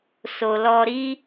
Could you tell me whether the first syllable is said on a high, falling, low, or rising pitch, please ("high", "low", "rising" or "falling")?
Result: low